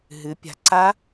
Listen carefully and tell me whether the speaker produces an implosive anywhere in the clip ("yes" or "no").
no